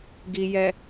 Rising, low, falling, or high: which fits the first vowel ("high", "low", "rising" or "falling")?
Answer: low